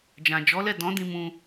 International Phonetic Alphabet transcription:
d͡ʒ ã˨ d͡ʒ ɔ˨˦ l ɛ˦˨ d ɔ̃˨˦ d ĩ˧ m ũ˧

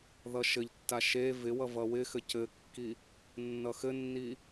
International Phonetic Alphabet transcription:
ð ʌ ʃ ɘ ʎ tː a ʃ e v ɪ w ʌ v ʌ w ɪ x ɘ c ɘ kː i | nː ʌ x ɘ nː i

